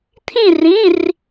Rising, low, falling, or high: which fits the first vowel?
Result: falling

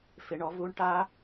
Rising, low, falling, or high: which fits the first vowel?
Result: rising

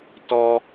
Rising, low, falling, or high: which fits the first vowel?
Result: high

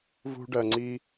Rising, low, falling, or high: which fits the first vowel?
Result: high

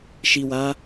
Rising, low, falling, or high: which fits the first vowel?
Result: low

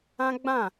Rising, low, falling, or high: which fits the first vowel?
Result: high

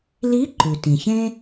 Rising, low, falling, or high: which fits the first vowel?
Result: rising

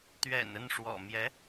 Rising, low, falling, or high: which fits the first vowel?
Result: low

